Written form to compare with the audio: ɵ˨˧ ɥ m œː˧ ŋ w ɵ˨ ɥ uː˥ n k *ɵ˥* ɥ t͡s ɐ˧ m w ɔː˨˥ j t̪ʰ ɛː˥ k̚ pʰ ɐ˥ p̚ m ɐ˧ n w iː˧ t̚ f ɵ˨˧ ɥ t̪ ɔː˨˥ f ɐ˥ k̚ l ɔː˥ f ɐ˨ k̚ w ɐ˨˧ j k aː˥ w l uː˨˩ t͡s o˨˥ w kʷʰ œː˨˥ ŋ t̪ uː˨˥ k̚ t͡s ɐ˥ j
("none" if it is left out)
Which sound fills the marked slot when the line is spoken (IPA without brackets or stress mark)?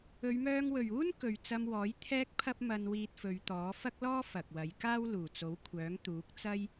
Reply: ɵ˨